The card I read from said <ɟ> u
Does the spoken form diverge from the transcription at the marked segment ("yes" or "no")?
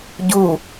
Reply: no